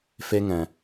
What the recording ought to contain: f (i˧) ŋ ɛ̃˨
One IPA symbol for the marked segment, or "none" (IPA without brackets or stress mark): e˧